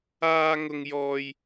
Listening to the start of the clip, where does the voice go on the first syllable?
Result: high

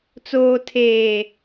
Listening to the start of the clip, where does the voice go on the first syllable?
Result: low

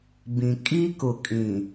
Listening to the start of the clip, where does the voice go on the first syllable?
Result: low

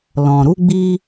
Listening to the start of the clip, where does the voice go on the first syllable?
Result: low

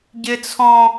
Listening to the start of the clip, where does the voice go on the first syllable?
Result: high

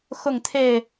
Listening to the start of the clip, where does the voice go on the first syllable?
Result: falling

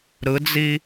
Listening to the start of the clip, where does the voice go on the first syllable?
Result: rising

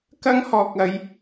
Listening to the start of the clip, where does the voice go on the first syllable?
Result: high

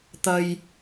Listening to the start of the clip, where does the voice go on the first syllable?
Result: high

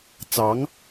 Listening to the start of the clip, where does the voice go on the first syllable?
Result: rising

